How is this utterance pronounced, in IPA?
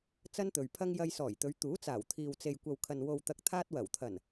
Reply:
t͡s ɐ˥ n t̪ ɵ˨ ɥ pʰ ɐ˥ ŋ j ɐ˧ j s ɔː˨˩ j t̪ ɵ˨˧ ɥ t̪ uː˨˥ t͡s aː˨˩ w t̪ʰ iː˨ w t͡s e˨ j kʷ ɐ˨ w kʰ ɐ˨ n w o˨ w t̪ ɐ˨ k̚ t̪ʰ aː˧ t̚ w ɐ˨˩ w t̪ʰ ɐ˨˩ n

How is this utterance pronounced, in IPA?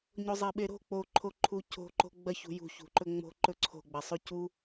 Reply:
ɲ o zˤ e ɓ e ɾ o̤ k͡p o ǃʰ o ǃʰ u cʰ o̤ ǃ o̤ ɡ͡b ɐ ç ṳ j ṳ ç ṳ ǃ ɵ ŋ͡m o̤ ǃ ɵ ǀʰ o̤ ɡ͡b ɐ sˤ ʉ c u

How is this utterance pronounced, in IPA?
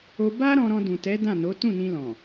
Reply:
o˧ b a˦ ɾ ɔ̃˧ ɾ ɔ̃˧ d ũ˨ t ɛ˨˦ d ã˦˨ n o˨˦ t ũ˦˨ n ĩ˧ l ɔ̃˨

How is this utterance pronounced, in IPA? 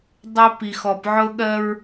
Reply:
dˤ ɪ˦ p i˨ x ɔ˨ p ʕ ʊ˦ ɠ ɜ˦ ɹ

